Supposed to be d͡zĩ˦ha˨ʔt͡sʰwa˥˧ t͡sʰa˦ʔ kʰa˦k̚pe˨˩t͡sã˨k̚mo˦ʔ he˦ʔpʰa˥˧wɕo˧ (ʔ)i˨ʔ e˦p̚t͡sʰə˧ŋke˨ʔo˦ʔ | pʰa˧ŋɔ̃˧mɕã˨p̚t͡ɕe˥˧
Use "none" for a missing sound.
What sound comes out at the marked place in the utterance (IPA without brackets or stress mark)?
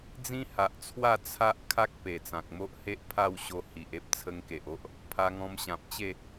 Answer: h